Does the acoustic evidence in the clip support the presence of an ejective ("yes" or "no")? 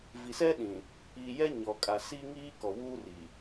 yes